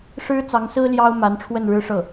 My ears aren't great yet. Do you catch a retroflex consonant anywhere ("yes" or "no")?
yes